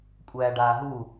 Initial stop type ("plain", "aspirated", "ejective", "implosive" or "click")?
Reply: ejective